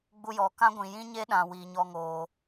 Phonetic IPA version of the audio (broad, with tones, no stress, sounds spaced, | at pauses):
ɡ͡b u˧ j ɔ˨ k ã˦ ɡʷ ĩ˨ j ĩ˦ ɲ e˦ ɗ ã˨ w iː˨ ɲ ɔ˧ ŋ oː˨